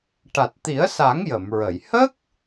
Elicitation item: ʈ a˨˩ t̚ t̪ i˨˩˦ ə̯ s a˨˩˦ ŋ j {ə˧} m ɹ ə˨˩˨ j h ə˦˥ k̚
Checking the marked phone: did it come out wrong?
yes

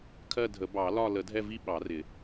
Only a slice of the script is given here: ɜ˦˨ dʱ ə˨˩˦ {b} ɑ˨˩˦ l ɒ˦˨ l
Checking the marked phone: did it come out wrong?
no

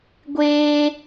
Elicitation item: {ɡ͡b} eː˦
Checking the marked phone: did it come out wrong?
yes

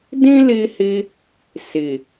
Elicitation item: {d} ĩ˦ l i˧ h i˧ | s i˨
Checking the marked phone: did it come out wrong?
no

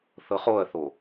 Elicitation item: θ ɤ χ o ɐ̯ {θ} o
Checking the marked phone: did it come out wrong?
no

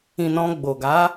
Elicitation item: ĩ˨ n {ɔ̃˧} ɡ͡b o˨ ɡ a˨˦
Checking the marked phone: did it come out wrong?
no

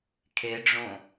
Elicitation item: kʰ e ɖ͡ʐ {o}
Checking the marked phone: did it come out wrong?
yes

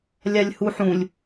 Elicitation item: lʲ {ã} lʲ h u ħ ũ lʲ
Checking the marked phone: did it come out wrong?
yes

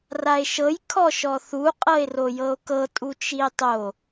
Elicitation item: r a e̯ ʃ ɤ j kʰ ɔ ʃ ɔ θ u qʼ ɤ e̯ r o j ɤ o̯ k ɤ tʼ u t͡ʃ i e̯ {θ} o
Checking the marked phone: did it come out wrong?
yes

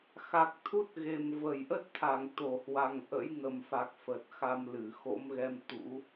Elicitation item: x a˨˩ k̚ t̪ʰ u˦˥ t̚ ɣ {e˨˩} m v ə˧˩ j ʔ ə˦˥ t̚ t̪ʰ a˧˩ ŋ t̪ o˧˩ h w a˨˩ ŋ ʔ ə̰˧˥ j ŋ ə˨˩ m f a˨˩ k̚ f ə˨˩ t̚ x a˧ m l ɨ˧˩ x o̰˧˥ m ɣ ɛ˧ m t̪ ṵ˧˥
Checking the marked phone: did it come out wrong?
no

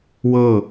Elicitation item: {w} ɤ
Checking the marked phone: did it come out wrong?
no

